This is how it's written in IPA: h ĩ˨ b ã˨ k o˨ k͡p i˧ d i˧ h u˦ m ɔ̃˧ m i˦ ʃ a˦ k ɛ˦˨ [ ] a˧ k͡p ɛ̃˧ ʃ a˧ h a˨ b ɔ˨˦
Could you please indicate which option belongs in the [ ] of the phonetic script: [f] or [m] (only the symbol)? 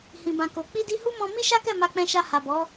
m